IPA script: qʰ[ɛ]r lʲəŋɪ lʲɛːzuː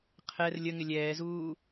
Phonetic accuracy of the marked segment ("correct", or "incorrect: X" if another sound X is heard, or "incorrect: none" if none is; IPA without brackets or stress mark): correct